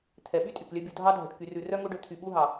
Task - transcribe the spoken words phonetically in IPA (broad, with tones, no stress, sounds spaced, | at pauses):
t̪ʰ ɛ˩ ɓ y˥ tʼ y˩ k lʲ œ˦ bʲ u˨ dʱ ɑ˦ dʱ œ˩ ʈ k y˨ r ʉ˨ r œ˥ ŋ o˦ ɖ ɵ˨ t̪ʰ y˨ ɓ u˥ ɦ ɑ˩